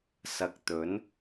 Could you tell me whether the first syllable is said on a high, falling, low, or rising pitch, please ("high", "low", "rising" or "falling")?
low